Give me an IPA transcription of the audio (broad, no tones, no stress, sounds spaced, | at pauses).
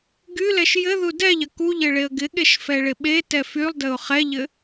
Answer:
ɡ y l ɛ ʃ j ɘ ð u d ɛ ʎ ɐ k u ʎ ɘ ɭ e ə̯ ɡ ɪ ɠ e ʃ f ɛ ɭ ɪ ɓ e t ɛ f y lˠ d ɘ ʊ̯ χ ɛ ʎ ɘ